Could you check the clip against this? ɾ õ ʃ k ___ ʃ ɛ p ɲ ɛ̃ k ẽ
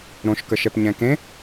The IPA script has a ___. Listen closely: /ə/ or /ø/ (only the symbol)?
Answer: ə